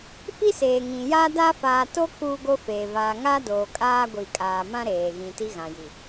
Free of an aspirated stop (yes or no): yes